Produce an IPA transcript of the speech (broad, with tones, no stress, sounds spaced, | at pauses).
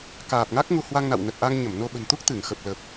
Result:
k aː˨˩ p̚ ŋ a˦˥ k̚ ŋ u˧ h w a˧ ŋ n a̰˧˨ w n ə˨˩ t̚ ʔ a˧ ŋ ɲ ə˧˩ m n o˧ ɓ ə̤˨˩ n t̪ u˦˥ k̚ t̪ ɨ˧˩ ŋ x ə˨˩ p̚ l ə˨˩ p̚